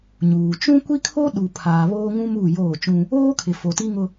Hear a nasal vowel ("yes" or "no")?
yes